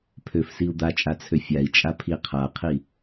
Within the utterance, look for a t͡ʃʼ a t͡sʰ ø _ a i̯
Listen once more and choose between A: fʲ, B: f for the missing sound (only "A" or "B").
A